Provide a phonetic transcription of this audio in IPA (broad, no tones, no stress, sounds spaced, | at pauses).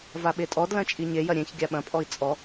v a ɓ e tʼ ɔ d l ɐ̃ t͡ʃʼ i ɲ e j ɐ ɾʲ ẽ ç ɡʲ a ɓ ɐ̃ pʼ ɔ i̯ t͡sʼ ɔ